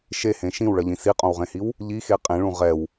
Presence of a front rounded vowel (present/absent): absent